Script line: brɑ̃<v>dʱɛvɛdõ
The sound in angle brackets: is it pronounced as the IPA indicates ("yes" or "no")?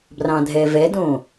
no